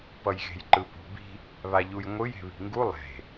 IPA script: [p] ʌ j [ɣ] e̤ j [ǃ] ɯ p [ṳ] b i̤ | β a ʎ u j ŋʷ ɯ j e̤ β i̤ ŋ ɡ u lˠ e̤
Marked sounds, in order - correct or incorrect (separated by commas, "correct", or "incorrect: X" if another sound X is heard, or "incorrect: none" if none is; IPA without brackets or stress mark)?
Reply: correct, correct, correct, correct